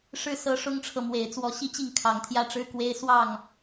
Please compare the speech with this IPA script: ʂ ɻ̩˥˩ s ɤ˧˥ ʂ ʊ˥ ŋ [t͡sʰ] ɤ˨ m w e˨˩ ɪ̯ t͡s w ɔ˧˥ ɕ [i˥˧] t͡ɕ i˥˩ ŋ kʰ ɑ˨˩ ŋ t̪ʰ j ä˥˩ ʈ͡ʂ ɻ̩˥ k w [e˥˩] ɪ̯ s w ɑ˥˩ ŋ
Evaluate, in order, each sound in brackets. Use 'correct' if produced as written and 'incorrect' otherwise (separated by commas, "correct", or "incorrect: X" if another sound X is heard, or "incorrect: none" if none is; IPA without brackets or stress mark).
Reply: incorrect: ʈ͡ʂʰ, correct, incorrect: e˥